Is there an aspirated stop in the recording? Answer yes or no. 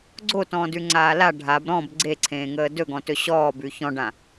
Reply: yes